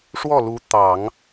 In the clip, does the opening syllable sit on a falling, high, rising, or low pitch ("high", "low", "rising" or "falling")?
falling